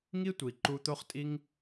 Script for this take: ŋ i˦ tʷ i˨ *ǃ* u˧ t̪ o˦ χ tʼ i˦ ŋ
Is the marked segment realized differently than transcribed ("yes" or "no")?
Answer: no